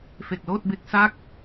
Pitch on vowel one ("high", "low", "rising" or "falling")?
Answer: low